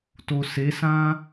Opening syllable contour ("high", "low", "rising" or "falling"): low